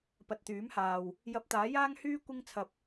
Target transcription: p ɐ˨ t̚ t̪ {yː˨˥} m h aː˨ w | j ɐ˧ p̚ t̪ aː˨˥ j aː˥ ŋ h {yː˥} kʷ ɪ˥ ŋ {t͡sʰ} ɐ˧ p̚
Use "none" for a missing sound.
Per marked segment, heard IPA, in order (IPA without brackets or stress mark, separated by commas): yː˨˥, yː˥, t͡sʰ